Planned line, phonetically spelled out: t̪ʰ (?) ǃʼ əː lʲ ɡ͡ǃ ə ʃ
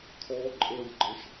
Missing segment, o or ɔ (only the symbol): ɔ